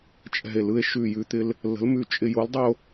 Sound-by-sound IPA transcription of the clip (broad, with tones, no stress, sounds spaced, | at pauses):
t͡ʃʼ ɛ̤˧˩ e̯ l ɯ˧ e̯ ʃ ʉ˧˩ j ʉ˧ t̪ ɪ˧ l | l ə̤˨˥ l m ʉ˧˩ t͡ʃʼ ɪ˧ j o˨˥ l dˤ ɪ˧ o̯